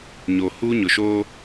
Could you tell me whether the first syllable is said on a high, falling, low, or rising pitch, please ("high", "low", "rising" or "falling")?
low